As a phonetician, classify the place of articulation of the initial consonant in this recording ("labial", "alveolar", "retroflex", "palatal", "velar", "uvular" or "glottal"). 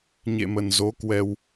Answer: palatal